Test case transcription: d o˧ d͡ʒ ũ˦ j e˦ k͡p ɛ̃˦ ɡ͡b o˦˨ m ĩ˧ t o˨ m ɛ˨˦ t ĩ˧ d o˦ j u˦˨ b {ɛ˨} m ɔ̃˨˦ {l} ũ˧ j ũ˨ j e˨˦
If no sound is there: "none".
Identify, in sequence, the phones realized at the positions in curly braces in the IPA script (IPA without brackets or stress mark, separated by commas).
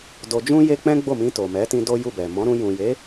ɛ˨, ɾ